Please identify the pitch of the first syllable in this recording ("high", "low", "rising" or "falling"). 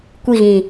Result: falling